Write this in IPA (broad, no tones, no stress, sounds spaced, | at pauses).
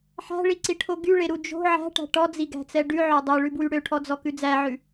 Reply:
ħ æ̤ ɭ i ǀ i ʈʰ o ɡ y ɭ e ɾ u d͡ʒ o̤ ʕ æ̤ ʈ æ̤ ʈ ɔ d͡z i ɡ æ̤ t͡s ɛ ɖ ʉ ʕ ø dˤ e ɭ ʉ b w y ɽ ø ʈʰ ɔ d͡z ɔ k ʉ d͡z æ ʕ ʉ